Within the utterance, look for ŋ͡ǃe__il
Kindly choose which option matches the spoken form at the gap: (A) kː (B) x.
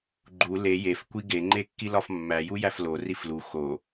A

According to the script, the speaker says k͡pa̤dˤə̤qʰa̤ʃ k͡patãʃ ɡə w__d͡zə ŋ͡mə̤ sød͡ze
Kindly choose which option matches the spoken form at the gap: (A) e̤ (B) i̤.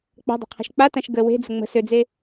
A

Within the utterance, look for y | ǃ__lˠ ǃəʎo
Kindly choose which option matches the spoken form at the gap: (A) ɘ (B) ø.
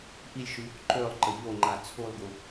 B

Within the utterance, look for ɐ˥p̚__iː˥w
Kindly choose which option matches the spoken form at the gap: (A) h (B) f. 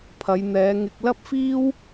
B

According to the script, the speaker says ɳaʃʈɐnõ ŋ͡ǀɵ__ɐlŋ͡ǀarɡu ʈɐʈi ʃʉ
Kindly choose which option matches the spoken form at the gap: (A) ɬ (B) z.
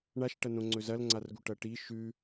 B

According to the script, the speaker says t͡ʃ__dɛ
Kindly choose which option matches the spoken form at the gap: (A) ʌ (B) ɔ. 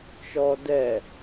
B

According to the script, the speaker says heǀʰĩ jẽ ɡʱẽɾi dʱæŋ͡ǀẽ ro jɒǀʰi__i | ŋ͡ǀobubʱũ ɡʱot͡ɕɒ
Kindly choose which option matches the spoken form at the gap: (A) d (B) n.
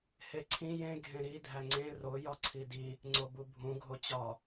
A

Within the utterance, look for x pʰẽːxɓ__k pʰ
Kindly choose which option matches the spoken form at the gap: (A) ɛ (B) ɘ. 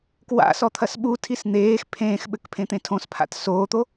B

